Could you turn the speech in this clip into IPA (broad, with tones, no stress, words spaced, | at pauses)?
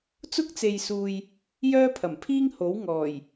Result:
t͡sʊ˥k̚t͡se˨jsuː˨j | jœː˥pʰɐ˨˩mpʰiː˥ŋho˨˥w ŋɔː˨˩j